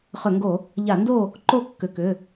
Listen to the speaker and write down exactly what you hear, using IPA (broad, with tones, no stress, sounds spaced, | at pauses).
χ ʏ˧˩˧ ŋ ɡ o˧˩˧ | ʎ a˧˩˧ n d o˥˨ | ǃ o˥˨ kː ʏ˩˧˩ k ʏ˩˧˩